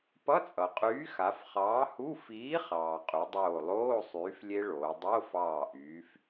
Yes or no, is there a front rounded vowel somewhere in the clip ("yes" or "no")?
yes